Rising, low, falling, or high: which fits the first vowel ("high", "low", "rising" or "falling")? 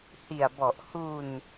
low